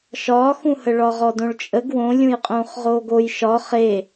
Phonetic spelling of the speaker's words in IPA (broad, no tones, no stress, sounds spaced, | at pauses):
ʃ ɒː x ũ h ə ɭ ɒ ʁ ɔ d õ ɭ t͡ʃʼ ə ɡ w õ lʲ ũ j qʼ ũː χ ʁ oː ɡ o j ʃ ɒ χ e